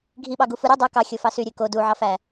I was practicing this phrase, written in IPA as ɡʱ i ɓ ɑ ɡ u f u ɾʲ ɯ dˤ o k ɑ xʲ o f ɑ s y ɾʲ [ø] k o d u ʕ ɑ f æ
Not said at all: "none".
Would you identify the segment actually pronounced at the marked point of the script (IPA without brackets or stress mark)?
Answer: ø